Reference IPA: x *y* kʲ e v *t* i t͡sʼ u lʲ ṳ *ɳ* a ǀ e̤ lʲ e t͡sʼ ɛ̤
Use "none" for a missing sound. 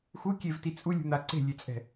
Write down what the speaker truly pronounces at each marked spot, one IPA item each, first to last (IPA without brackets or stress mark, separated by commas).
u, t, n̪